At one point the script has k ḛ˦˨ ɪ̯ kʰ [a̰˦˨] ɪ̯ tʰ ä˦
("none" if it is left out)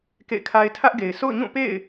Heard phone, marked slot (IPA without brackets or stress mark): a˦